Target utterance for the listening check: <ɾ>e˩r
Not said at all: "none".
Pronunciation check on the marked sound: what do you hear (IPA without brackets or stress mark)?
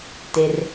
t